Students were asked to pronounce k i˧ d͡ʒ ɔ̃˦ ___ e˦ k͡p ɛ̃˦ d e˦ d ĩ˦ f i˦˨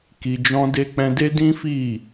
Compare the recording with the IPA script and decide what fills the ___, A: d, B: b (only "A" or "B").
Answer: A